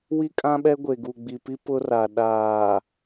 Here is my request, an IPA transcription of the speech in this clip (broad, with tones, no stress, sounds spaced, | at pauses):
w i˦ kʼ ã˦ ɓ ɛ˦ ɡʷ e˨ ɡ u˨ ɡ͡b i˨ p i˦ p ʊ˦ r a˨ ɗ aː˨